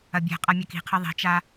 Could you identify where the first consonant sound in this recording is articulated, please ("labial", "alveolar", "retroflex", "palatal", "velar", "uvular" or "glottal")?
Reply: labial